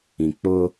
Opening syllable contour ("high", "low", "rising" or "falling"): low